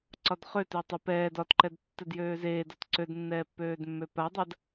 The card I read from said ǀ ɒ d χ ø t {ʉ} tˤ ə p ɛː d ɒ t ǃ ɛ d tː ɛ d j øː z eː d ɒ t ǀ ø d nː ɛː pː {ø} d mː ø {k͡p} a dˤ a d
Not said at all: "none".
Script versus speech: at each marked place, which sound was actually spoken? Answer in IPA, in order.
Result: ø, øː, p

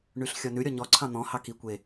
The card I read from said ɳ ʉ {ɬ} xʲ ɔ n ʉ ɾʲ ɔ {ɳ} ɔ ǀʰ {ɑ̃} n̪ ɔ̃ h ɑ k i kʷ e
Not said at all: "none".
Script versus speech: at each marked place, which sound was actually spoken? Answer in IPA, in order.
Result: ɬ, ɲ, ɑ̃

